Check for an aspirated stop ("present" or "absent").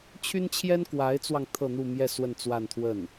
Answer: present